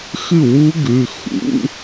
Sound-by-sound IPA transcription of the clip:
x ɨ˥˨ w u˦˥ ɡ ʉ˩˧˩ x ṵ˧˥˧

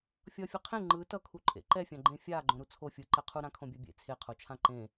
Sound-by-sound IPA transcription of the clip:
fʲ ʌ fʲ ɛ qʰ ẽ ŋ͡ǃ ɯ t ʌ kʰ u ǃʼ ḛ ǃ ɛ fʲ ã ɡ͡ǃ ẽ fʲ a ɡ͡ǃ õ ɾ u t͡sʰ o fʲ ɯ ǃ ɛ qʰ u ɾ ã kʰ õ bʲ a bʲ ḛ t͡sʰ e qʰ o t͡ʃʰ ã ǃ ẽ

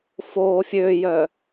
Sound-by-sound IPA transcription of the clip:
f oː fʲ ø j œ

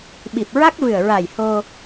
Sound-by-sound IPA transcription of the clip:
ɓ i˨˩ p̚ ɹ a˦˥ k̚ v ɨ˨˩ ə̯ ɹ a˨˩ j h o˧

